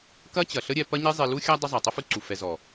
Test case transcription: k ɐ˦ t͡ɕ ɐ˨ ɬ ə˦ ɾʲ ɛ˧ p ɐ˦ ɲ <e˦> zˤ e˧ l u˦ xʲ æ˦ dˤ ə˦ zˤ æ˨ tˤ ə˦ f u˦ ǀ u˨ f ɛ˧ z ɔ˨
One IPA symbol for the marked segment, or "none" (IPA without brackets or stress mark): e˦